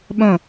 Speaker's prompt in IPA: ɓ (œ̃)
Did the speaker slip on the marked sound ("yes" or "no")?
no